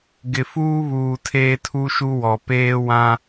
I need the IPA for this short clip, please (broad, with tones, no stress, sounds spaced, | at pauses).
ɡ ɪ˨ f uː˦ β uː˨ tʰ eː˦ tʰ u˦ ʃ u˦ w ɔ˨ p eː˦ w ã˦